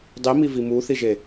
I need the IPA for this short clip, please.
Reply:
dˤ i m i v i m u θ i ʒ e

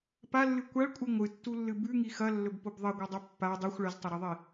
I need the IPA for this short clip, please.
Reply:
p a lː ɨ kʷ a ɭ kʷʼ ɨ ŋʷ ɨ tː u lː ɨ b ʉ ŋ i x ɐ lː ɵ b p o b ðˤ ɐ ɡʷ ɨ dˤ ɵ pː a dˤ ʉ xʷ ɭ ɐ z tˤ ɵ ɾ e ðˤ i

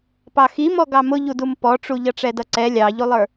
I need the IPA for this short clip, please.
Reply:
p ɑ x i m ɔ ɡ ɑ m ʊ ʎ u d u m p ɔ ʈ͡ʂ u ʎ ʌ ʈ͡ʂ ɛ d ʌ ǀ ɛ lʲ ɑ ʎ u lˠ ə˞

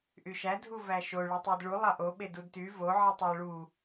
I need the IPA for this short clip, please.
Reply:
ʔ y ʃ æ dʱ u v æ ʃ o ɭ y tˤ i d ɭ u lˠ ɑ ʔ o ɓ e d u d t y v o ʕ i tˤ o ɭ u

